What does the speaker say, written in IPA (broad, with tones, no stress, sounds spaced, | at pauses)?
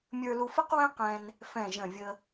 mʲ ə˞˧ l u˧ f ə˥ q w ɛ̃˥ q ɛ̃˧ n | f ɛ̃˨˩ ʒ ə̃˨˩ vʲ ə˧